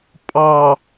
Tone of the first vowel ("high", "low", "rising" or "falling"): low